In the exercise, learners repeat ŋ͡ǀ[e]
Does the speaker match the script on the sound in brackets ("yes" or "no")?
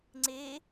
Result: yes